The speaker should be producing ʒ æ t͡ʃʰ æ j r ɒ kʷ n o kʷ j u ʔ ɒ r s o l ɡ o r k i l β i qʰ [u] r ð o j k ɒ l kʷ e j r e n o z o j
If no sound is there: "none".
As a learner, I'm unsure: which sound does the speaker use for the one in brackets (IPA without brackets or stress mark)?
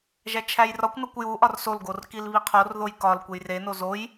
o